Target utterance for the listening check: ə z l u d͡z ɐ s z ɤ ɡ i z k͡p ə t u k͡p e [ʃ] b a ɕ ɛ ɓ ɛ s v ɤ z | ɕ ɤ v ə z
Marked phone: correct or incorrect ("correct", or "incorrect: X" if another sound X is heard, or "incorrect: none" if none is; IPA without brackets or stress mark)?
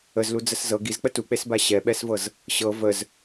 incorrect: s